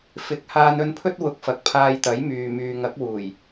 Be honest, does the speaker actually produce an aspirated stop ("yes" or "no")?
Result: yes